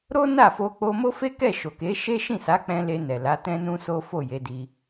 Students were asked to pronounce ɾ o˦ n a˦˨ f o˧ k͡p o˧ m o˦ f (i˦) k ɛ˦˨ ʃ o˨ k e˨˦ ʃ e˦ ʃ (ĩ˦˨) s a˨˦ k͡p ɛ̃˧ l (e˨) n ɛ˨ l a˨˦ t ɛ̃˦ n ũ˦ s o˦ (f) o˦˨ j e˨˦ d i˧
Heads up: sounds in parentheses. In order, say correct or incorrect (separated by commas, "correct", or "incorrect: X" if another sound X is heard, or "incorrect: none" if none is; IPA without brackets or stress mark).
incorrect: e˦, correct, incorrect: e˧, correct